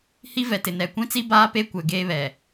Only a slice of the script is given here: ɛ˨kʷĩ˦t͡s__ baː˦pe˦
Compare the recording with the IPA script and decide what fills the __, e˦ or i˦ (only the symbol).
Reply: i˦